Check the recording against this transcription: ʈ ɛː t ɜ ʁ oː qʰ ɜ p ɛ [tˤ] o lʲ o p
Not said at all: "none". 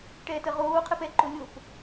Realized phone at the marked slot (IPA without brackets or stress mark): ǃ